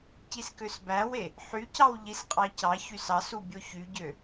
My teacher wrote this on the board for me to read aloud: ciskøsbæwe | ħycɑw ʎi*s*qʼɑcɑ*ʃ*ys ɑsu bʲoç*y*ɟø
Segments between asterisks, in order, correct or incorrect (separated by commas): correct, incorrect, correct